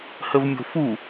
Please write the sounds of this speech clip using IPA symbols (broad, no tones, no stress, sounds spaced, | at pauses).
h ə v mʲ o̤ f u